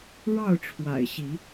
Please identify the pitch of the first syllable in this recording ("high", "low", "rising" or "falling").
falling